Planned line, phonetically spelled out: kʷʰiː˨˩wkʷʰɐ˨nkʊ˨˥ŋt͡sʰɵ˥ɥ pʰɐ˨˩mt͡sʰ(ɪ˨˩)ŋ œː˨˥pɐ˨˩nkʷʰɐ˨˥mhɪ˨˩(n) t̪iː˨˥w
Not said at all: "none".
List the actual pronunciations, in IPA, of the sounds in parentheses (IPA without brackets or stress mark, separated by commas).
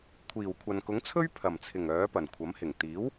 ɪ˨˩, ŋ